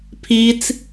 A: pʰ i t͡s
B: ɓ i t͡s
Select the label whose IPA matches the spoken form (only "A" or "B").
A